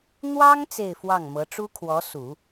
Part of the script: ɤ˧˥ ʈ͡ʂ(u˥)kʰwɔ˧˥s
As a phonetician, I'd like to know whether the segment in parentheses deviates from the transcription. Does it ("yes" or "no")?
no